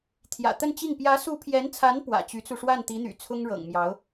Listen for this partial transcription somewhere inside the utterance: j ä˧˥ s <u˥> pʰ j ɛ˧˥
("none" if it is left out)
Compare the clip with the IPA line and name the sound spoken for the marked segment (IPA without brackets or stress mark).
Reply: u˧˥